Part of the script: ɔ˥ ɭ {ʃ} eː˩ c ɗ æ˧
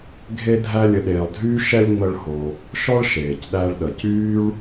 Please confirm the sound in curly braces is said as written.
yes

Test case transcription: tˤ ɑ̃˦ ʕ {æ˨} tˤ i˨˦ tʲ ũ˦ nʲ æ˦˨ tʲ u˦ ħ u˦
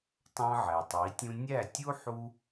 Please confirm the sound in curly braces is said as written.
yes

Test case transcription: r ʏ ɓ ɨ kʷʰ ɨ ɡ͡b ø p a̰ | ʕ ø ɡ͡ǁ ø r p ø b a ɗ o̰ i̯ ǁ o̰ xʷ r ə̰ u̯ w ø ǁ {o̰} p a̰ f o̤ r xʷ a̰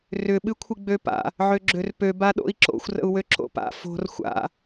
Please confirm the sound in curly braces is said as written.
yes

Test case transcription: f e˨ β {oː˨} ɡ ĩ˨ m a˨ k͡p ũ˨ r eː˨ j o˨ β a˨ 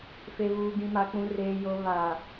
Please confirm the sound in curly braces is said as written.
no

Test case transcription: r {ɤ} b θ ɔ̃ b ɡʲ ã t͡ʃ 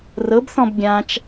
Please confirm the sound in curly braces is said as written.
yes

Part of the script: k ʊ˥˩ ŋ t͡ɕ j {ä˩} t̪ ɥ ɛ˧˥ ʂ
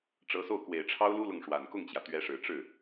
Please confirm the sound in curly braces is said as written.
yes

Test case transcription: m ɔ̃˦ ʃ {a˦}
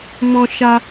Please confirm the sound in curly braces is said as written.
yes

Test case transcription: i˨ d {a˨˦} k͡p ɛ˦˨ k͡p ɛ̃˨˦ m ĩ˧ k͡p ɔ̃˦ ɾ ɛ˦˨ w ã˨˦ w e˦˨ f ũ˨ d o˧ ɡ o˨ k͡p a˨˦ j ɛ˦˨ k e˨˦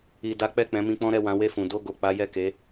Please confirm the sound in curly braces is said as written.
yes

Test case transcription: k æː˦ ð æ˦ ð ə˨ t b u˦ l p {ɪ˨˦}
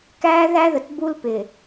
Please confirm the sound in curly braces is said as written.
no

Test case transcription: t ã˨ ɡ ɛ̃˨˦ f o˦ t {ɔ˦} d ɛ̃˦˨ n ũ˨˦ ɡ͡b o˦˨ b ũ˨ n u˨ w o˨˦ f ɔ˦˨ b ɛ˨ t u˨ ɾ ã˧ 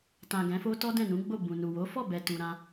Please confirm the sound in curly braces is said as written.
yes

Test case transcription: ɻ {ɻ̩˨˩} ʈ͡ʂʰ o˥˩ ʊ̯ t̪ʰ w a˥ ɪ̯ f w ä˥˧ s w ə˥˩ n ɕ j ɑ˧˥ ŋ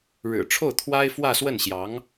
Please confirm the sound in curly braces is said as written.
yes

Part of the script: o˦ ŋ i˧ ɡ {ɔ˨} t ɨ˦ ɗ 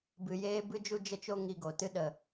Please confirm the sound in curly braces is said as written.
no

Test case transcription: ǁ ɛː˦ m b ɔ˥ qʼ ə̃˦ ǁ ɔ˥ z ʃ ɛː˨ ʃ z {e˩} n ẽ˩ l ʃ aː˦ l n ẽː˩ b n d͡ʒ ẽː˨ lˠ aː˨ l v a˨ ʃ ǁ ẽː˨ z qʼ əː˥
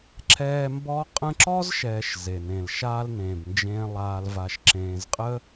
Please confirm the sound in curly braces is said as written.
yes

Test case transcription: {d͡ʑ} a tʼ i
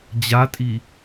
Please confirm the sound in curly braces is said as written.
yes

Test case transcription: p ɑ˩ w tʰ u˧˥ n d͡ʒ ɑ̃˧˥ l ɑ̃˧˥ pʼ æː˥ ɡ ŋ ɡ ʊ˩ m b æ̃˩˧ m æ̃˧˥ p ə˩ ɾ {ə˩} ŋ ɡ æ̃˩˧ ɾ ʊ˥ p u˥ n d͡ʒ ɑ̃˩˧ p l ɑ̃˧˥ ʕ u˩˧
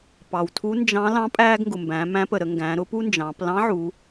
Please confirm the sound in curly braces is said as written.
no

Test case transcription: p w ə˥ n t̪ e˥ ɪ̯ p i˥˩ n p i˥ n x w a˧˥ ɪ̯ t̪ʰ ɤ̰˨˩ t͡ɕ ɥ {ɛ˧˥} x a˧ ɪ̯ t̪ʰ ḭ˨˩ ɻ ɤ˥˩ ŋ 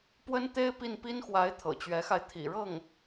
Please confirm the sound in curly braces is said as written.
yes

